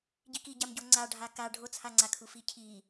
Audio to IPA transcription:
ɟ i k i ɟ a m ɟ o ŋ͡ǀ a ɖʱ a k a ɖʱ o t͡sʰ a ŋ͡ǀ a kʰ u f i cʰ i

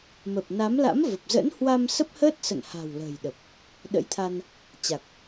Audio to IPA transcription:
m ə˨˩ p̚ n a˨˦ m l a̰˧˥ m v ə˨˩ p̚ z ə̰˧˥ n h w a˧ m s ə˦˥ p̚ h əː˦˥ t̚ s ə̰˧˨ n h a̤˨˩ w l ə̤ː˨˩ j ɗ ə˨˩ p̚ | ɗ ə̰˧˥ j t̪ʰ a˧ n | t͡ɕ a˨˩ k̚

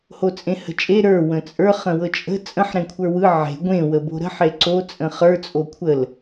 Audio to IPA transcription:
h o t͡sʼ ẽ h ə̤ t͡ʃʼ e ɾ ə˞ w ə̃ t͡sʼ ə˞ χ ə̃ w ɤ t͡ʃʼ ə̤ t͡sʼ ə̃ ħ ɾ ẽ kʷʰ ə˞ w ɯ ʕ e̤ ɡʷ ẽ w ə b o̤ ɾ ə̤ ħ e ǀ o t͡sʼ ə̃ χ ə˞ t͡sʼ o kʷʰ ə l

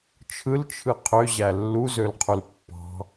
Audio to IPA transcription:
t͡ʃʰ ɯ l t͡ʃʰ ɯ qʰ ø ʑ æ lː u z ø l qʰ u l pː ɑ̤

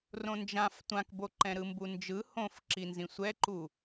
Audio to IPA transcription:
r õ n d͡ʒ ã f tʷ ã k b o ǃ ɛ̃ ɾ ɯ m b u n d͡ʒ ɯ h õ f ǁ i n z ĩ sʷ ɛ ǃ u

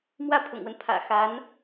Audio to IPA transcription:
m w ä˥˩ pʰ ʊ̰˨˩ ŋ w ə˦ n pʰ ä̰˨˩ x a˧˥ n

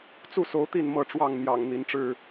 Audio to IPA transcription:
t͡s u˥˨ s o˨˦ ʊ̯ t̪ i˥˨ n m ɤ˥˨ ʈ͡ʂ w ɑ˥˨ ŋ n̪ j ɑ̰˨˩ ŋ n̪ i˨˦ n ʈ͡ʂ ɻ̩˥˨

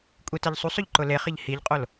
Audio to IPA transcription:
kʷʼ i t ɛ ʎ sˤ u sˤ ʊ ʎ ǃ ʊ l e χ ɪ ʎ h i ʎ qʼ o l

